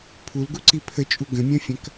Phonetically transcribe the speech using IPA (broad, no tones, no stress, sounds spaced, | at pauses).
pʰ u l ɡ u ǀ i pʰ ə t͡ʃʼ u ɡ ə̃ mʲ ɐ̃ fʲ ɐ̃ k